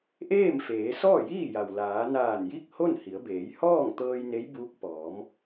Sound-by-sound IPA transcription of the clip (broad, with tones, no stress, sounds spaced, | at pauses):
ʔ eː˥˨ m f eː˩˧ s ɔː˥˨ j iː˥˨ j a˩ w l aː˩˧ n aː˧˩ n j i˥˨ k̚ h o˥˨ n h i˩˧ ə̯ b eː˩˧ j h ɔː˥˨ ŋ t̪ ɤː˧ j n e˧˥ j b uː˧˥ k̚ p ɔː˩˧ m